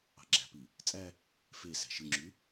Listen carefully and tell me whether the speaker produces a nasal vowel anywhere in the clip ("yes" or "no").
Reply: no